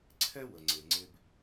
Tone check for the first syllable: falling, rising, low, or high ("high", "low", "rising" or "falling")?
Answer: high